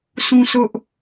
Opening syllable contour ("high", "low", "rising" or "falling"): high